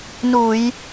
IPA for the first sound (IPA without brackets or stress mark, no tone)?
n